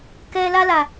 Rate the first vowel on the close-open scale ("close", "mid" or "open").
mid